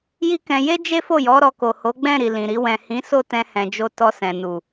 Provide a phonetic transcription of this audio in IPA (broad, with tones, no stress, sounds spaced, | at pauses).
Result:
j i˦ k ɛ̃˧ j e˦ d͡ʒ e˦ f o˦˨ j ɔ˨˦ ɾ ɔ˧ k o˨ h o˨˦ ɡ͡b ɛ̃˦˨ ɾ i˨ l ĩ˨ ɾ i˧ w ɛ̃˨ h ĩ˨˦ s o˦˨ t ɛ̃˧ h ɛ̃˨ d͡ʒ o˧ t ɔ˧ s ɛ̃˨ n u˨